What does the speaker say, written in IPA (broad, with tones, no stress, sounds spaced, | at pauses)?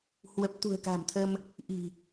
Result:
h w ə˨˩ p̚ t̪ ṳ˨˩ ə̯ k a̤˨˩ m t̪ʰ ə˧ m | ʔ i̤˨˩